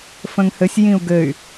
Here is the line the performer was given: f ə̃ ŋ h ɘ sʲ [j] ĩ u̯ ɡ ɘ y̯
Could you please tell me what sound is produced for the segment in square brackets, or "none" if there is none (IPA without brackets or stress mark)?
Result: j